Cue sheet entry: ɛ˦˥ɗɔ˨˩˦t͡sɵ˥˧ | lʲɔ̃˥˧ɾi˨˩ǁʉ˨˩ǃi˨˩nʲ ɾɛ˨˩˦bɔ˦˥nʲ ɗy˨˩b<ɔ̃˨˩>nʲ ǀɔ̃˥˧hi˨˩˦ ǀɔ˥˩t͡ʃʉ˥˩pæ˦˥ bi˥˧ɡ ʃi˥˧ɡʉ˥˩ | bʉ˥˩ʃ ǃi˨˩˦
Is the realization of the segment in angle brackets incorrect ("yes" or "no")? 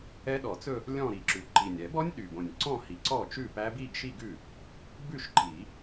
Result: yes